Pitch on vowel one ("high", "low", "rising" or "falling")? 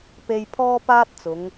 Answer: high